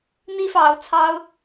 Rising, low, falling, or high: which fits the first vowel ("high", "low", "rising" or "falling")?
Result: high